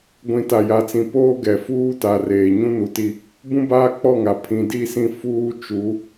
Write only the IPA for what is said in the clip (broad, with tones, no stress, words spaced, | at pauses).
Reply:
ɡʷĩ˨˦ta˨ja˨t͡sĩ˨ poː˦ɡɛ˨ fuː˦ta˨reː˨ ɲũ˦nu˨ti˦˨ | bũ˦baː˦k͡pɔ˦˨ŋa˨ pʰĩ˨di˦˨sĩ˦ fuː˦ t͡ʃu˨˦